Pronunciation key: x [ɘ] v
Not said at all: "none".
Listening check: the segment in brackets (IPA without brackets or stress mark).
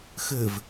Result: ɘ